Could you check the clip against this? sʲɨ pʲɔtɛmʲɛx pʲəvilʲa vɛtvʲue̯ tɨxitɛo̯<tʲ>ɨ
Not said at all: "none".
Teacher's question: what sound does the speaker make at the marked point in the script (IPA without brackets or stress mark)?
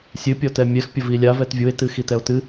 t